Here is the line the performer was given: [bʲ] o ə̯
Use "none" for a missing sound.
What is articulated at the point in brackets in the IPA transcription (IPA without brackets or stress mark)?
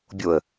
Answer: bʲ